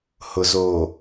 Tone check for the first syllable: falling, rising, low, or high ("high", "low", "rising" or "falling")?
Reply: low